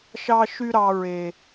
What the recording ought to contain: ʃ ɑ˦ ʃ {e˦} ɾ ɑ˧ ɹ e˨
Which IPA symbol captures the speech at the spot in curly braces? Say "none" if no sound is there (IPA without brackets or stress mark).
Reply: y˦